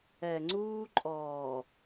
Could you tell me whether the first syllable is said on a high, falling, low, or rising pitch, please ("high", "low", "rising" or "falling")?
low